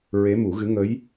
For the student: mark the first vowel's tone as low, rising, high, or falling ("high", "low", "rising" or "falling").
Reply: rising